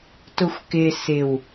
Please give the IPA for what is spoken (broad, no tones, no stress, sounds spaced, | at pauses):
t ʊ xʷ k ɪ s ɪ w